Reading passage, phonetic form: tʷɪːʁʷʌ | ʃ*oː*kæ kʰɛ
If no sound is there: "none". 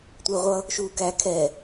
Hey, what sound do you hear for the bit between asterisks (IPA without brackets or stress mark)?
uː